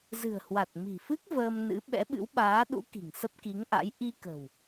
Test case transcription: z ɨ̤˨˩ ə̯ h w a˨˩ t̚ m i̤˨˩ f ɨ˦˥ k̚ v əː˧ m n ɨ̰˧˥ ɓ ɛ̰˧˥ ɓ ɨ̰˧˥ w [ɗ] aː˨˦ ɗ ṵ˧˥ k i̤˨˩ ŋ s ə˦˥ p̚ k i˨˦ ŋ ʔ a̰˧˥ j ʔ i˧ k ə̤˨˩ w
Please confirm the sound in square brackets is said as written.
no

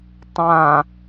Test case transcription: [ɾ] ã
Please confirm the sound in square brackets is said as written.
no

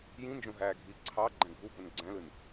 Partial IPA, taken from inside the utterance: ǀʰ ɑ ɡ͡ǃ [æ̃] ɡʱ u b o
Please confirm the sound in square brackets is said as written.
yes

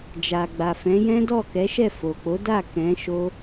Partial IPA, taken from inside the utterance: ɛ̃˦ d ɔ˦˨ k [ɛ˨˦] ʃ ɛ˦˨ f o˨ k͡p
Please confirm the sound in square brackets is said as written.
yes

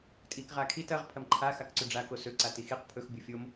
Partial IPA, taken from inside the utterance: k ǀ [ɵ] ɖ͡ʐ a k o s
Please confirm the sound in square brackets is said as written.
yes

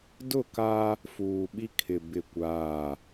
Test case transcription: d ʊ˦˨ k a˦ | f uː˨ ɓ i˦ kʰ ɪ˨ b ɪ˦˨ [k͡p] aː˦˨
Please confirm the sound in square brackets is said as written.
no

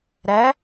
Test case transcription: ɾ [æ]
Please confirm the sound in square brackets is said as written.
yes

